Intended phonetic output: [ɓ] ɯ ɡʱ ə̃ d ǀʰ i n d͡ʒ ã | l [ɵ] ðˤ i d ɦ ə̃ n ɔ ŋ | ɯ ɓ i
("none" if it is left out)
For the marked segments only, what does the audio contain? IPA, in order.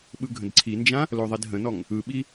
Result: ɓ, o

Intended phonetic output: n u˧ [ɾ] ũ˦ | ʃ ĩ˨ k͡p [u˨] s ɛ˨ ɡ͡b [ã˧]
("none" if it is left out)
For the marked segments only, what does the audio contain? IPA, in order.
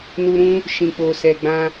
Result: ɾ, o˨, ã˧

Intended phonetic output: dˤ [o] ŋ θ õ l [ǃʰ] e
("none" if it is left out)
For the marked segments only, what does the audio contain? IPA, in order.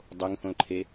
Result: o, ǃʰ

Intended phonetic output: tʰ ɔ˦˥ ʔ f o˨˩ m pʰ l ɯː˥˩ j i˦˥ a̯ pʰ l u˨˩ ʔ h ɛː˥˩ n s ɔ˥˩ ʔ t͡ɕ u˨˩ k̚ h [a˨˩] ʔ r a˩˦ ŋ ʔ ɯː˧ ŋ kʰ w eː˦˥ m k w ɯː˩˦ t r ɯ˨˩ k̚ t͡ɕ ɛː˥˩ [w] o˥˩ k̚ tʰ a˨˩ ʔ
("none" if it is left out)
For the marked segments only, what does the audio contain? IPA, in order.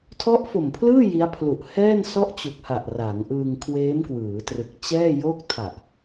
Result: a˨˩, j

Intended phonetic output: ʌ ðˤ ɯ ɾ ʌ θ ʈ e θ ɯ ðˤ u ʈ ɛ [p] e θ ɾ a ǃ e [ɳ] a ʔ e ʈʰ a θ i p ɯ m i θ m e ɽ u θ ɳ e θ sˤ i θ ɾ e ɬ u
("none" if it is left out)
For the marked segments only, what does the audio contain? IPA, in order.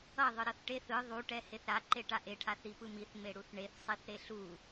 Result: h, ʈ

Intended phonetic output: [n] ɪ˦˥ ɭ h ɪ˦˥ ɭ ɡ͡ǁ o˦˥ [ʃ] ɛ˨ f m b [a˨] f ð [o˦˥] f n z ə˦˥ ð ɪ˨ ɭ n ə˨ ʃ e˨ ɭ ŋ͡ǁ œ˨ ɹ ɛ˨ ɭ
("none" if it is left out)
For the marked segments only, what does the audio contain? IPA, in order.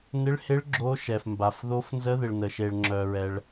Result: n, ʃ, a˨, o˦˥

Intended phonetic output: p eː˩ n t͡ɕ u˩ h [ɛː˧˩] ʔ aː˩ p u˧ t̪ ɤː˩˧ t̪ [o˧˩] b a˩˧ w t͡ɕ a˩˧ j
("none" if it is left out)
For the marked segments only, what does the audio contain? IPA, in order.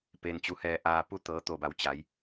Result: ɛː˧˩, o˧˩

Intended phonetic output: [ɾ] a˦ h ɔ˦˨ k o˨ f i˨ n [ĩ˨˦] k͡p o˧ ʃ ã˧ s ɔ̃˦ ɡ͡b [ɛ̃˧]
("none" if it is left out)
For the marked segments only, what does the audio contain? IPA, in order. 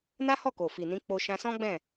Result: n, ĩ˨˦, ɛ̃˦˨

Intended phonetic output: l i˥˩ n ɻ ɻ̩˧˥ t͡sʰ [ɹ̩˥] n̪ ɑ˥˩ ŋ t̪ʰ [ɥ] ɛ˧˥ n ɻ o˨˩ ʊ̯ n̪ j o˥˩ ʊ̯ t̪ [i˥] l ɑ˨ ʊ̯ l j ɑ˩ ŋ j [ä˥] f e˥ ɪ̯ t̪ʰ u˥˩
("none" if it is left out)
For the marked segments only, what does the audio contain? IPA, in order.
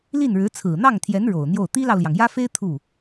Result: ɹ̩˨˩, j, i˥, ä˥

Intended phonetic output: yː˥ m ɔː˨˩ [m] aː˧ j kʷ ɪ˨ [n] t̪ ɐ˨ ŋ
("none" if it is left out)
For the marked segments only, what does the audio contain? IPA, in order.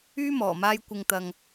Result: m, ŋ

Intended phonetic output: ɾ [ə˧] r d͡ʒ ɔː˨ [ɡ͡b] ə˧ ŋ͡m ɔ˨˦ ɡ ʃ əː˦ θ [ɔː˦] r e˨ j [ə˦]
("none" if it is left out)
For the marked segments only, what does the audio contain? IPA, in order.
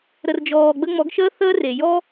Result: ə˨, ɡ͡b, əː˦, ɔ˦

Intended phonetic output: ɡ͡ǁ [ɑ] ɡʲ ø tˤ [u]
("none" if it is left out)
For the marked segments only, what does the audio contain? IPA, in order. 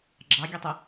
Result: ɑ, ɯ

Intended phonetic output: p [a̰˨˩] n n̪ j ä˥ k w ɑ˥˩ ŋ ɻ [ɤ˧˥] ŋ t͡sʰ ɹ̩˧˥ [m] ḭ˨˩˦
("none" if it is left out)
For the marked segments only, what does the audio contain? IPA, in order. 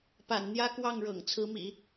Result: a̰˨˩, ɤ̰˨˩, m

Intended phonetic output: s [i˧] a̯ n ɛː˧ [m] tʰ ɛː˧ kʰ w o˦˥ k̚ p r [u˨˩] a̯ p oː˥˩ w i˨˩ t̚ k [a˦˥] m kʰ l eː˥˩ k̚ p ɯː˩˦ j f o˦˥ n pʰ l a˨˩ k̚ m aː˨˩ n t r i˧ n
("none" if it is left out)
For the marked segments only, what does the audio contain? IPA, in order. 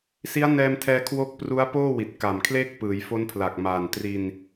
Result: i˦˥, m, u˦˥, a˨˩

